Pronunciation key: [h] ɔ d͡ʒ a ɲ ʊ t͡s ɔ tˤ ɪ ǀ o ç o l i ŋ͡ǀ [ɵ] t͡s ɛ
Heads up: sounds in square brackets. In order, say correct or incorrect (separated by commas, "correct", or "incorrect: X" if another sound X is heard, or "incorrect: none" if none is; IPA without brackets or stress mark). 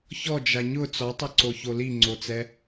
incorrect: ç, incorrect: o